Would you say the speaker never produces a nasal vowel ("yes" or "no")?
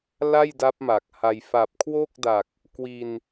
yes